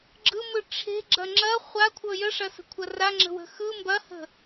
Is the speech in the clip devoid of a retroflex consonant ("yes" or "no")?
no